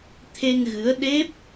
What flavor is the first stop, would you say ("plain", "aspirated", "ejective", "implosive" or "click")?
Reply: aspirated